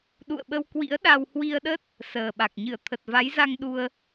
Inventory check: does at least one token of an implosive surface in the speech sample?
yes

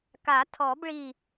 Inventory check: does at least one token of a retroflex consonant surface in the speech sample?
yes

